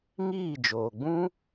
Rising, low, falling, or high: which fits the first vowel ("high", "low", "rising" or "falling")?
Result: falling